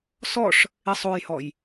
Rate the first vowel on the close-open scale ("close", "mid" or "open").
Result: mid